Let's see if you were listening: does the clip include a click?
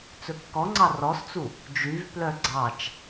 yes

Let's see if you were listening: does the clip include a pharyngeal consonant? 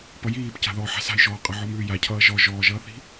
yes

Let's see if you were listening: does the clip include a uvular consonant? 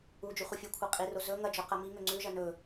yes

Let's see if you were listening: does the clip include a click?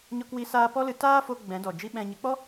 no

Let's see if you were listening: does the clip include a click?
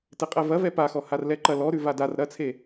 yes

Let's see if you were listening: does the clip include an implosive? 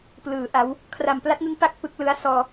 no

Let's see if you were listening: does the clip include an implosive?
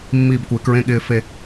yes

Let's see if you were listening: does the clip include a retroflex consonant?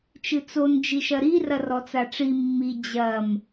yes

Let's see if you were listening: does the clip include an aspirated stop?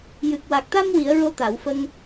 no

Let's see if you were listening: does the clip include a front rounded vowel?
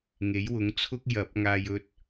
no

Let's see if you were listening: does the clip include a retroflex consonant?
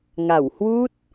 no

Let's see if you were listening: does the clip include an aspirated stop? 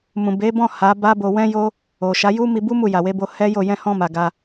no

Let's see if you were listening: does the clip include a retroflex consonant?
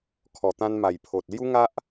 no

